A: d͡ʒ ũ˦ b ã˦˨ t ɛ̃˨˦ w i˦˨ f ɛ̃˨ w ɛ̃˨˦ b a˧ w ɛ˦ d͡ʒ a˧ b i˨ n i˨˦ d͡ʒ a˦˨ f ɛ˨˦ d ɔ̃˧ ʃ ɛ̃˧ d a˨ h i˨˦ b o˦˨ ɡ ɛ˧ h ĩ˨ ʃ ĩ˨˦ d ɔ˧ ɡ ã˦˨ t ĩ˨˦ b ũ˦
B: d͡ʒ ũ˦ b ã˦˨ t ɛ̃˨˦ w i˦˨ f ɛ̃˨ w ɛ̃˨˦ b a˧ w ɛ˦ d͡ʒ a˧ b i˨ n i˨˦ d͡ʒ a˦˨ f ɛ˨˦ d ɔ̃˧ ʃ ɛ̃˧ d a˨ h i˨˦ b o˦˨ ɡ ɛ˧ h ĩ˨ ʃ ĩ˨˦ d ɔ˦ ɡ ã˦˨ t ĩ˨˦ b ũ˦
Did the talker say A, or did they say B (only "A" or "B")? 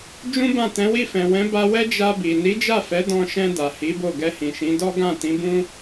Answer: B